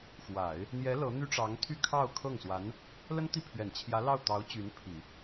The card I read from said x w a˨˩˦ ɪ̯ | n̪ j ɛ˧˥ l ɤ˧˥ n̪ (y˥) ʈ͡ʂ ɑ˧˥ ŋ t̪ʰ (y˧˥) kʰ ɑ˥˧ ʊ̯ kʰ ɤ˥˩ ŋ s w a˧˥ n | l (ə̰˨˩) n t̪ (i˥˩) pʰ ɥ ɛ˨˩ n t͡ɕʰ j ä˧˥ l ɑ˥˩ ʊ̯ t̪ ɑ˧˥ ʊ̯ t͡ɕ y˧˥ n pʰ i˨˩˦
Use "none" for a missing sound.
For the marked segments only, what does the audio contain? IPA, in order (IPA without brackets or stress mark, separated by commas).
y˥, y˥˧, ə˥, i˥˩